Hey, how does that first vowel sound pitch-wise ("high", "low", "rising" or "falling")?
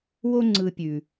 high